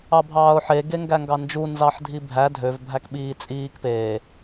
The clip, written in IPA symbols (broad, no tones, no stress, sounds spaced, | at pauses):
ɑ bʱ ɑː ʊ̯ ħ e ɡ e ŋ ɡ æ ŋ ɡ ɑ n d͡ʒ u n z ɑ ħ dʱ i bʱ æ dʱ ø v bʱ æ k ɓ iː t͡sʼ iː k p eː